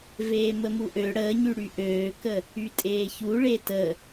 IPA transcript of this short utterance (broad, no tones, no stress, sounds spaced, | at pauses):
v eː m ə m u ʔ ø ɽ əː ɲ y ɽ y ʔ øː k ə | y tʼ eː ç u ɭ e t ə